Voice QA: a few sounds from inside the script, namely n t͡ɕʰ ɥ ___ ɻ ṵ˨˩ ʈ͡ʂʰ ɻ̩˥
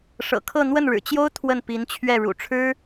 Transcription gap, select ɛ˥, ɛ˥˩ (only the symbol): ɛ˥˩